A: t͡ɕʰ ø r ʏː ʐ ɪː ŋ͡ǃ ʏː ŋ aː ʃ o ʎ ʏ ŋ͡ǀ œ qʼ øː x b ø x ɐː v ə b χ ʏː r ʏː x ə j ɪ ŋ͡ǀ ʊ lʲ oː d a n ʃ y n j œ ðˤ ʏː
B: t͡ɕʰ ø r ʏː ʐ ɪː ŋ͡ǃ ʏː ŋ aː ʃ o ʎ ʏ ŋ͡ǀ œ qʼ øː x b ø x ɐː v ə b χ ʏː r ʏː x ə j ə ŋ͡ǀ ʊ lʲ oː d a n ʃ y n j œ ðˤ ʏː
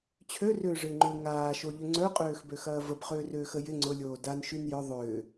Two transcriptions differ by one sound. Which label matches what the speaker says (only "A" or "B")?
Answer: A